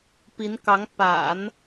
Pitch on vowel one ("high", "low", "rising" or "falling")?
rising